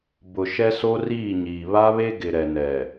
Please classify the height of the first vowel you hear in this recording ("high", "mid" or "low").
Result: high